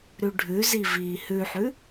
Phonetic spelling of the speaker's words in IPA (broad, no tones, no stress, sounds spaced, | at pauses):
ɾ ʉ ɖʱ ʉ z i v iː h ʉ ħ ʉ